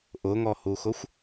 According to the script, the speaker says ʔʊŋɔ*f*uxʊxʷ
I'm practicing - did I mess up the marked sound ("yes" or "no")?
yes